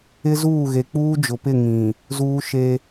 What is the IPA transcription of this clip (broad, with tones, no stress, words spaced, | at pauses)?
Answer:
ɪ˦zuː˦˨ ɣe˨k͡puː˦d͡ʒʊ˨pɪ˦˨ ŋĩ˨ | zuː˦ʃe˦